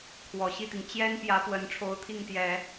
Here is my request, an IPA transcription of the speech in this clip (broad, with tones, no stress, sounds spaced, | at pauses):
kʰ w ɔ˨˩ ɕ i˥˩ t̪ i˩ ŋ t͡ɕ j ɛ˥ n p j ä˧˥ p w ə˧˥ n ʈ͡ʂʰ o˧˥ ʊ̯ t̪ʰ i˥˩ ŋ t̪ j ɛ˨˩˦